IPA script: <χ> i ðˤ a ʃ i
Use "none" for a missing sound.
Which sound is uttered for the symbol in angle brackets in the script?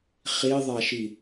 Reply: χ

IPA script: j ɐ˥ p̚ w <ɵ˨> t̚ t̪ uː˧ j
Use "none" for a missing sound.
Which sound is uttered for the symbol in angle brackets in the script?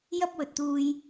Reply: ɵ˨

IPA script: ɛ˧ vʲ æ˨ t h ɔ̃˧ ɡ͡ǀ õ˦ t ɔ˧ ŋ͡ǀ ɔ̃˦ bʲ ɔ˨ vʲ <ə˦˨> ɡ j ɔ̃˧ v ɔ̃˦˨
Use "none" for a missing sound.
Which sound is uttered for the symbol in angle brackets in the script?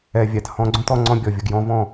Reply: ə˨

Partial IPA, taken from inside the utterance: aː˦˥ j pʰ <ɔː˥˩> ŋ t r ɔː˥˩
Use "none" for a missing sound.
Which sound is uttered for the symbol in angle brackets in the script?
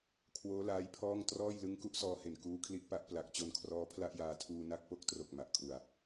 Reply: ɔː˥˩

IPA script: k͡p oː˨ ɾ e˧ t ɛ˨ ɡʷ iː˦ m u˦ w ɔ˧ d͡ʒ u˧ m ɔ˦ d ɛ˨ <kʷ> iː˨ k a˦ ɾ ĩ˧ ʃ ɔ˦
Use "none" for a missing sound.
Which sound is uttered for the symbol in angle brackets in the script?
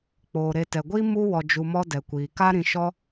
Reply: kʷ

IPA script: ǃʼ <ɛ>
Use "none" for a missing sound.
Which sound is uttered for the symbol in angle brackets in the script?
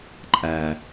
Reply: æ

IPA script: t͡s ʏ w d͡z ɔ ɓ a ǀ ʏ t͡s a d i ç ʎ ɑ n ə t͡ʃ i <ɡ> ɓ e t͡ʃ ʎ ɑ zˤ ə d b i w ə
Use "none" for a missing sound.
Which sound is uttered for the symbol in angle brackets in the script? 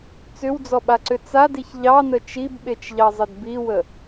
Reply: b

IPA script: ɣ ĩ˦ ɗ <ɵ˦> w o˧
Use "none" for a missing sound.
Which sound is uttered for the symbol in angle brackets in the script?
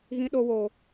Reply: o˦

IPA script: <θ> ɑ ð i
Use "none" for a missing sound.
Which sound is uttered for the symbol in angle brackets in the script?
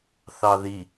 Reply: θ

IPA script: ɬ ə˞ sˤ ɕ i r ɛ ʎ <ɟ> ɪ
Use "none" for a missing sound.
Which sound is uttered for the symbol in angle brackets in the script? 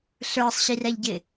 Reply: ɟ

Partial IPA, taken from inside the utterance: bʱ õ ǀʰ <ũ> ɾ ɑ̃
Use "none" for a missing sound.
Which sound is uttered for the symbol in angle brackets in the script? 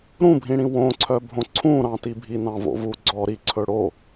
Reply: ũ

